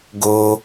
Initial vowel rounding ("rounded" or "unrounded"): rounded